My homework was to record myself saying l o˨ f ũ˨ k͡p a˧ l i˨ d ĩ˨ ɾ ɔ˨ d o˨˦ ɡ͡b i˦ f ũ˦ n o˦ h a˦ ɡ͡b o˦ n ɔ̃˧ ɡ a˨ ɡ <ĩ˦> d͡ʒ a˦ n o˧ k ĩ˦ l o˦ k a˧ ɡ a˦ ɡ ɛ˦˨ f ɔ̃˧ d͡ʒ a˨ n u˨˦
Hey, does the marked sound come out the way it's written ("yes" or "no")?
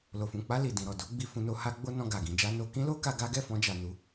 no